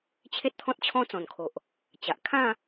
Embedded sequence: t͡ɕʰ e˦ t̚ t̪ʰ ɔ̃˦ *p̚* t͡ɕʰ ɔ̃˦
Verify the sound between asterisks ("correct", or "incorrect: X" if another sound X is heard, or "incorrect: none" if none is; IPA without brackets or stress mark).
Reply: incorrect: t̚